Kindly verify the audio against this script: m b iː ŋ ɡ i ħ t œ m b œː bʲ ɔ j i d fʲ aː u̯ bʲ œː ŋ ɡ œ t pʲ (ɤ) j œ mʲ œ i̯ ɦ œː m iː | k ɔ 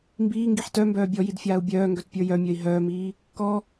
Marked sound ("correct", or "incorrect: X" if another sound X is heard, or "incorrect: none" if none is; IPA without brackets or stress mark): incorrect: ə˞